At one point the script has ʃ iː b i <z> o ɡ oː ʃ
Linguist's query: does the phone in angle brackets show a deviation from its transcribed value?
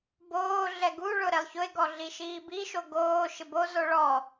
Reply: yes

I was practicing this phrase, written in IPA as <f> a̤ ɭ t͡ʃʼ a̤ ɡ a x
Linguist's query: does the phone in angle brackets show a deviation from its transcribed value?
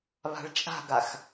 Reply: yes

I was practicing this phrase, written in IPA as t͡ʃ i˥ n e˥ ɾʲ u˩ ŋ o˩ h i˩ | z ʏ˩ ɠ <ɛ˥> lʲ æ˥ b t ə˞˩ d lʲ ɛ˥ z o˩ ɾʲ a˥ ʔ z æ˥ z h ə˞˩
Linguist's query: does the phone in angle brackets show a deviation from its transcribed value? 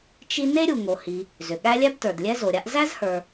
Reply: yes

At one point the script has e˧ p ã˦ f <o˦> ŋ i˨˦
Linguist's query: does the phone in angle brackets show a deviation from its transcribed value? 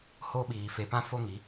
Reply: no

